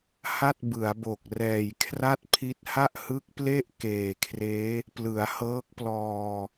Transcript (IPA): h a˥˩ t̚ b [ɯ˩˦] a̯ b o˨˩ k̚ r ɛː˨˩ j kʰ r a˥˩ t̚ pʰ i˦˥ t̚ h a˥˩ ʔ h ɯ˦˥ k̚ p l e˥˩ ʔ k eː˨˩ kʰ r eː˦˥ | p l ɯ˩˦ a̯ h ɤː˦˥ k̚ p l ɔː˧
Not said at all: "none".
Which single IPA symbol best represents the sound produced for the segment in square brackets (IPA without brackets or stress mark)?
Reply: ɯ˩˦